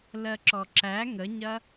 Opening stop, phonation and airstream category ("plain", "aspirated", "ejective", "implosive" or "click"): click